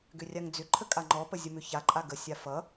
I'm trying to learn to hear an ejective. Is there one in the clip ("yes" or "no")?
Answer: yes